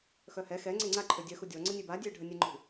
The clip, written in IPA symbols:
x œ h ɛ x ɛ ŋ͡ǀ e ŋ͡ǀ a ǃʰ ø dʲ œ x u dʲ ɔ ŋ͡ǀ ə nʲ e b a dʲ ø ɖʱ ə nʲ ɛ ŋ͡ǃ ṳ

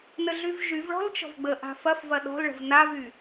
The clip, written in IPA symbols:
n ə ɮ y v ʒ y v ɭ ɔ̤ l t͡ʃ ɔ̤ v ɡ͡b ə ʔ a̤ f ɐ f v ɐ ɗ ɔ̤ l ɭ ə̤ v n a v y

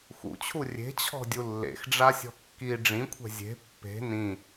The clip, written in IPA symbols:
x ṵ t͡ɕʰ u rʲ e̤ t͡ɕʰ ɔ̤ dʲ u lː ḛ x ɖ͡ʐ a sʲ ɔ̤ kː i ɖ͡ʐ ĩ kʷʰ ɛ̤ zʲ e̤ pː e̤ n ĩ

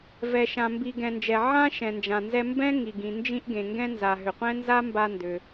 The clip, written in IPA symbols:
v ɛ˩ ʃ ã˩ m b i˩ ɡ ɛ̃˩ n d͡ʒ ɛ˩ ʕ ã˥ ʃ ɛ̃˩ n d͡ʒ ã˩ n z ɛ˧ m b ɛ̃˥ ŋ i˩ ɡ ĩ˩ n d͡ʒ ĩ˧ ʔ ɡ ẽ˩ ŋ ɡ ɛ̃˧ n z a˩ ɦ ʏ˩ qʷ ɛ̃˥ n z a˥ m b a˧ n d ʏ˩

